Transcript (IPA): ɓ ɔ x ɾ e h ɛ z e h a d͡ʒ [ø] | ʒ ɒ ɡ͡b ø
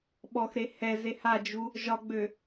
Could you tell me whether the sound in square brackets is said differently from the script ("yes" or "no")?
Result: yes